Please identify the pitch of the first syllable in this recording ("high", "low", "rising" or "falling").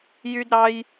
high